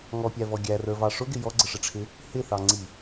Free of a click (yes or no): no